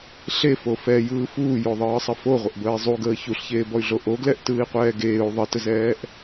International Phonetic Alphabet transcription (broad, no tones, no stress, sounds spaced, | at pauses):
ɬ e f o f ɛ j ɯː f uː j o ðˤ ɯː sˤ ə f o ʁʷ ə ʔ b əː i̯ zˤ u ɡ əː ç u ɬ ç eː b ɔ y̯ ɮ o ʔ o ɡ l ɛ ʔ t ɯː i̯ qʷ ɛː ɡ eː u̯ ðˤ ə t ə z ɛː ʔ